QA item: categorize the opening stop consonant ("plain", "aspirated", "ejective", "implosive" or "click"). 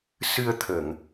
aspirated